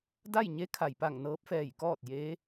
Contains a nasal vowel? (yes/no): no